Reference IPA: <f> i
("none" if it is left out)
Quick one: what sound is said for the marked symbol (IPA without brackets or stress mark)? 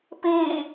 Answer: p